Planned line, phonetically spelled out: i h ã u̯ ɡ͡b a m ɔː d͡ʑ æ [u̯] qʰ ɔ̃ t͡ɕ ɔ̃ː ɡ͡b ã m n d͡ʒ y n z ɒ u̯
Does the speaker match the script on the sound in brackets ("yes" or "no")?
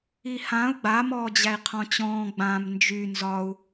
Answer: no